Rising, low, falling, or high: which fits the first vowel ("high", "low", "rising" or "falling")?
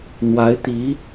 rising